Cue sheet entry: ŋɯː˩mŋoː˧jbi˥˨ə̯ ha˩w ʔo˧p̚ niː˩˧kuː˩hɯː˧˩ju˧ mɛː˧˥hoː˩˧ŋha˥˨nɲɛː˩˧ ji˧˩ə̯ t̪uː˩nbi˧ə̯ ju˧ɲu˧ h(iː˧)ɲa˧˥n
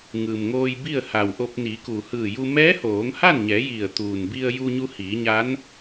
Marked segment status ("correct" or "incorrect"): incorrect